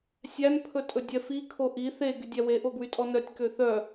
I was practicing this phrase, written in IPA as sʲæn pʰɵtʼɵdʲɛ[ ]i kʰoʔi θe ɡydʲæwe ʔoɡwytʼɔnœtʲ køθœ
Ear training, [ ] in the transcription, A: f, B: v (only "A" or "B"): A